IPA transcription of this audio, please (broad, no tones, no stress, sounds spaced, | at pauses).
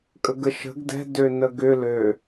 kʼ ə ɡ ə ʃ ə̤ ɡ d ɛ̤ d ø n ə ɡ ʏ l ø